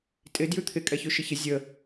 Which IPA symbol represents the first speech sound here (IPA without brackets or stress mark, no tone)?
tʼ